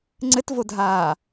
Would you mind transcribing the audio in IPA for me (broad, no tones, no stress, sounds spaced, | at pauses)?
ŋ͡ǀ ɘ t v o dʱ aː